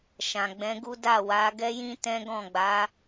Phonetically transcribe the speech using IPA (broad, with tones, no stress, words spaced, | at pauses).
ʃã˨ɡ͡bɛ̃˨˦ɡu˦ da˦˨wa˨˦ ɡɛ˦jĩ˦tɛ̃˦ɡɔ̃˦˨ ɡ͡ba˨˦